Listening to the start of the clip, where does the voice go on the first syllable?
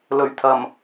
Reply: low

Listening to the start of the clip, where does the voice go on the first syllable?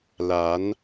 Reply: rising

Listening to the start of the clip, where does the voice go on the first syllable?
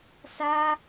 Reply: high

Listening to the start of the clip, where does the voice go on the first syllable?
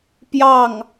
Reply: falling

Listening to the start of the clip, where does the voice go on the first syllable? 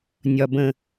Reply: low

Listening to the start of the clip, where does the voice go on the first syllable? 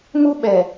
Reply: high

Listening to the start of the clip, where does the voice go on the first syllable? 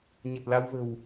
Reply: low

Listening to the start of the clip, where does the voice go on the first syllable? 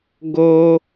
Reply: high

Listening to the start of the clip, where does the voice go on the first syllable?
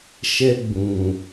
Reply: high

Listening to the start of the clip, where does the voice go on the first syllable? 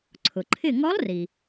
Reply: low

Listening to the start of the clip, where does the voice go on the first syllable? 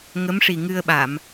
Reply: rising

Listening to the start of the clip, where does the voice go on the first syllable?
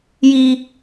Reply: high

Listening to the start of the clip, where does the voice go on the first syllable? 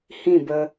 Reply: falling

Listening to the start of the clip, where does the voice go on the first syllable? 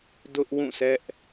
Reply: high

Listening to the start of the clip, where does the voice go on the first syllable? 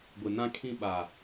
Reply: low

